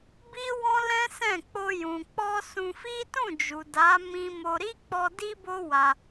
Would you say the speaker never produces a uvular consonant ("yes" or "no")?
yes